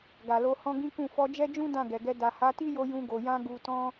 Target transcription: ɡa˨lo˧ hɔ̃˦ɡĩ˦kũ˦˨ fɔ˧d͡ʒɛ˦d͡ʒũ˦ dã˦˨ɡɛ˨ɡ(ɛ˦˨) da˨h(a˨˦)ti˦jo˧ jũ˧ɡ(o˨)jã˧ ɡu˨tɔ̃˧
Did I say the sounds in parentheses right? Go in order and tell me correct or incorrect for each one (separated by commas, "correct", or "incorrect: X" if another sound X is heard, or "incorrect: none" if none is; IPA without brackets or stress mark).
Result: incorrect: ɛ˧, correct, correct